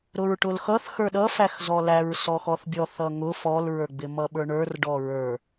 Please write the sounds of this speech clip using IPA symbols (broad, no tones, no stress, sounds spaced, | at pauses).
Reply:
ɾ ʊ ɹ ʈ ʊ l x ʌ θ x ə˞ ɗ ʌ f æ x z ɔ l æ ɹ s ɔ x ɔ θ bʲ ɔ θ ʌ ŋ ʊ f ɔ l ɹ ə˞ ɡ͡b ɪ m ʌ ɓ ə˞ ɳ ə˞ r ɖ ɔ ɹ ə˞